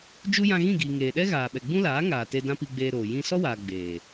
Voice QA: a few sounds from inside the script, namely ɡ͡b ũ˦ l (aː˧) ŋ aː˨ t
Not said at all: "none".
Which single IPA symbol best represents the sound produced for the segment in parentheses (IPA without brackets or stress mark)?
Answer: aː˨˦